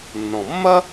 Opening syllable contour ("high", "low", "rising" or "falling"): low